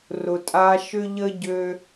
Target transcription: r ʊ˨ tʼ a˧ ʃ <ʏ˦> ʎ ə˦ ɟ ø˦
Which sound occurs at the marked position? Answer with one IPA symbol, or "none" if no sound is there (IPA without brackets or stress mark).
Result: ʏ˦